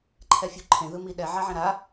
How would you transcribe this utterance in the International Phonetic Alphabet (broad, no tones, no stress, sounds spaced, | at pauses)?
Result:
ǃʰ ɛ fʲ u ǃʰ ẽ ð ɯ m i ɗ ɛ ʕ a ʕ ɛ̃ ɾ a